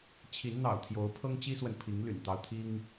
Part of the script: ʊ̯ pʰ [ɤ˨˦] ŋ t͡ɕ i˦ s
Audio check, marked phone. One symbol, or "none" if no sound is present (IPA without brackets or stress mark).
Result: ɤ˦